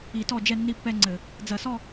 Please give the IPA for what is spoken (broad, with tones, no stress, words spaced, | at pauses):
i˧˩˧tɔ˥˩ d͡ʒɛ˥˩nːi˥˩pːɛ˥˧ŋ͡ǀɘ˧˩˧ | d͡zɐ˧˩˧sɔ˥˧